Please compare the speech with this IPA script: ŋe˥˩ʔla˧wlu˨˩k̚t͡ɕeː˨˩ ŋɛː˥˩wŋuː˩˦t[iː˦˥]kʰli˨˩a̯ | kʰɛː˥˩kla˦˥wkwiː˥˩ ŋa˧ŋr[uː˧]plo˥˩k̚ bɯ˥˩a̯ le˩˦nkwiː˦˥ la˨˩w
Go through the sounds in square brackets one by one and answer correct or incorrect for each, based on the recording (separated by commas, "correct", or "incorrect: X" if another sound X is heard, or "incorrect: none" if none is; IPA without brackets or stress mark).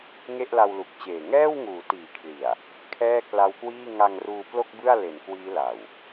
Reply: incorrect: iː˩˦, correct